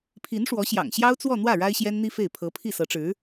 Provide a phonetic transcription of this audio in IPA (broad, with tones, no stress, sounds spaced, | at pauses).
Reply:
pʰ i˧˥ n ʂ w ɔ˧˥ ɕ j ɑ̰˨˩ ŋ ɕ j ɑ˥ ʊ̯ t͡s w ɔ˥˧ n̪ w ä˥˩ ɻ a˥ ɪ̯ ɕ j ɛ˥ n n̪ i˥ f e˥˩ ɪ̯ pʰ ɤ˧˥ pʰ i˥˩ s ɤ˧˥ ʈ͡ʂ ɻ̩˧˥